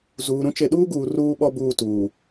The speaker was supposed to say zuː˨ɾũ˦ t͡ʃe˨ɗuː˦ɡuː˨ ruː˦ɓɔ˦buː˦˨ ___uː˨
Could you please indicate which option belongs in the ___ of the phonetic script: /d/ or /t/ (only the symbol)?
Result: t